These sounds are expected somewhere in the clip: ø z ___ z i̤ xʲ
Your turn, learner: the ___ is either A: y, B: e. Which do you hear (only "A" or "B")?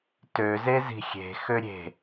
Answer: B